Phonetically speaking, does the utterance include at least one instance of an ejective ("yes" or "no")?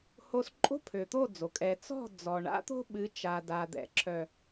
yes